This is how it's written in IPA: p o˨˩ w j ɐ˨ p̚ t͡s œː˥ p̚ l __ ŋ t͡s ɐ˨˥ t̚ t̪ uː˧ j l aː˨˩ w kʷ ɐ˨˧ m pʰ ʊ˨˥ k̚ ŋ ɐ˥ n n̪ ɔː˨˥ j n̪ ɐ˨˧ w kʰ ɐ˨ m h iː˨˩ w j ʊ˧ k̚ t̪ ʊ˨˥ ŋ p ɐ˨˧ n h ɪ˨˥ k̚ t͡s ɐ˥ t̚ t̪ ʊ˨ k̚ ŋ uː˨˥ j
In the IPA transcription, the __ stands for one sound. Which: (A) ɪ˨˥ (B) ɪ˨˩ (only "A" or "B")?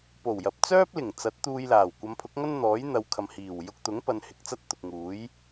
B